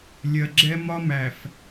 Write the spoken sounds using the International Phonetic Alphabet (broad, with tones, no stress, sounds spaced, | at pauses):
lʲ ɜ˨ ɡ͡ǁ ɛ˦ m ɒ˦ m æ˨ f